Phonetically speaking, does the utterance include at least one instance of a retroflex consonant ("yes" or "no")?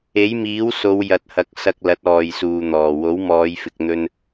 no